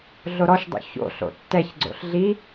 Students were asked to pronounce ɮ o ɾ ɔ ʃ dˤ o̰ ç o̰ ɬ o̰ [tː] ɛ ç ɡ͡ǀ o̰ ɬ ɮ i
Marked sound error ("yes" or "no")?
no